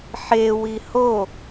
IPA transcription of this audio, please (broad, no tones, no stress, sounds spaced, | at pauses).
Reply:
ħ e w i h o